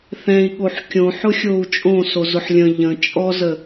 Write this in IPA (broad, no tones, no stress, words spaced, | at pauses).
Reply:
θɛ̃i̯ɠoħ kʲõħʊxʲou̯ t͡ʃʼõsozʊħ lʲə̃ ʎə̃ t͡ʃʼɔzə